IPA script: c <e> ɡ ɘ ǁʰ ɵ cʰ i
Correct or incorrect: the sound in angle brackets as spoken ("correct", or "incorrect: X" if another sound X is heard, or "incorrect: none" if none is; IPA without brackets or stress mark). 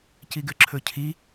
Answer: incorrect: i